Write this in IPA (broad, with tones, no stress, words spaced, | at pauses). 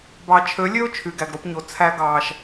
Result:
bɑ˨t͡ʃʰø˨˦lʲø˦ʊ̯ t͡ʃʰy˨ɡæ˨ɡɾo˧pɲo˨ t͡sʰæ˧ɡɑː˨ʃ